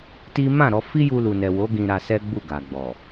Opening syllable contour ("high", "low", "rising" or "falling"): high